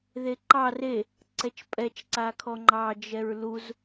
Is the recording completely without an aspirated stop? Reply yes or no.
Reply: no